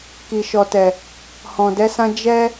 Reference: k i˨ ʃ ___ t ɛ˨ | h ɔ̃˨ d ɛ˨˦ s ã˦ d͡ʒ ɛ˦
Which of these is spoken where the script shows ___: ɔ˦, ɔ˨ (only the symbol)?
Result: ɔ˨